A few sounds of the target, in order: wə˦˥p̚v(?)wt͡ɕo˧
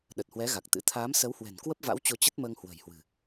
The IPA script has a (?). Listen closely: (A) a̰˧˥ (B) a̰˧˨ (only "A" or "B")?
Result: A